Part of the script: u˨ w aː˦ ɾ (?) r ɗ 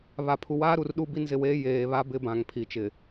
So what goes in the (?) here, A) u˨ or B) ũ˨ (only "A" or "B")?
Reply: A